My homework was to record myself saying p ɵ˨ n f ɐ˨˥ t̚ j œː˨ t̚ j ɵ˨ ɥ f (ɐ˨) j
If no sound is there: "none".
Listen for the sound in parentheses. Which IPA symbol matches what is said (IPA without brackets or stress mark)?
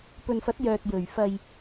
ɐ˨